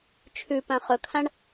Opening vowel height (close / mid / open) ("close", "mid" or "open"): close